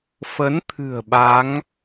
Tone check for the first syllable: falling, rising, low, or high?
rising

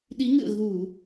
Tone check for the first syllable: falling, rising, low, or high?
rising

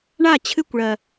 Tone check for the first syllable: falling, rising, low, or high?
falling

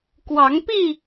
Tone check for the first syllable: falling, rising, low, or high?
rising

